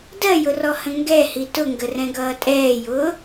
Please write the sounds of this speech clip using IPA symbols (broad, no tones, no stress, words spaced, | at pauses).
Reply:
dɜjʊrɔhə̃ ŋɡɛhi tʊŋɡərɛ̃ɡʌː tʼɛːjʊː